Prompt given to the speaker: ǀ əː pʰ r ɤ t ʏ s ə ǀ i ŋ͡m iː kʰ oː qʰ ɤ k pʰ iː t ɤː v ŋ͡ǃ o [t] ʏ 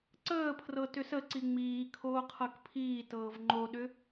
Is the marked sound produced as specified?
no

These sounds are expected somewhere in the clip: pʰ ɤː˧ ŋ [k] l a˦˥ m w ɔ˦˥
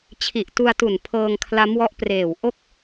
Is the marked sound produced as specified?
no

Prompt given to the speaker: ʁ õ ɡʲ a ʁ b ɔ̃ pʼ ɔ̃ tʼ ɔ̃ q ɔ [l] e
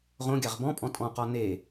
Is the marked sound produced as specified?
no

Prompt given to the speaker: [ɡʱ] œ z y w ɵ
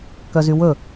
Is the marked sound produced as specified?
no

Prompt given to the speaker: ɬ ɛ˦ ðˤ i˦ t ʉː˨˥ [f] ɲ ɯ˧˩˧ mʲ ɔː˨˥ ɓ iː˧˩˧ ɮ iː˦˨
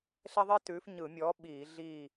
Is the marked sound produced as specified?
yes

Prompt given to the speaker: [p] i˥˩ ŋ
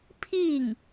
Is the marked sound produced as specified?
no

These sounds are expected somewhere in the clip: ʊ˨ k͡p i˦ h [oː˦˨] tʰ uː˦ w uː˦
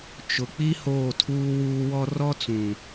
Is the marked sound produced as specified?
yes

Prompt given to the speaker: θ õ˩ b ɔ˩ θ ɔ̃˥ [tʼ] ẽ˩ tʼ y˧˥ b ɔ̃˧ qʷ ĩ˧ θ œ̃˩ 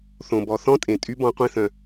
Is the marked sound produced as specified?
yes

